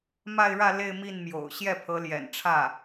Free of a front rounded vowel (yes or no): yes